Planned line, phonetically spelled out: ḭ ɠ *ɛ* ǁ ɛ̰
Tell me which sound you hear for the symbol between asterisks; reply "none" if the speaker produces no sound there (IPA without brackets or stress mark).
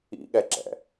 ɛ